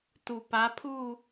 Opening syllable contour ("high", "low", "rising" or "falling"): low